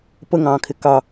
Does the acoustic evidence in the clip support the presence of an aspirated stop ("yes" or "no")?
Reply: yes